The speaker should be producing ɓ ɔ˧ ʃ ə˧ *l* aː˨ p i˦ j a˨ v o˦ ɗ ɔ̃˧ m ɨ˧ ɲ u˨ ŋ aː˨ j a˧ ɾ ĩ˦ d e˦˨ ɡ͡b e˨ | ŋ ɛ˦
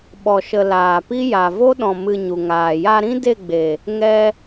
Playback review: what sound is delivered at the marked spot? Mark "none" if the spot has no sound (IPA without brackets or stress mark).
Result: l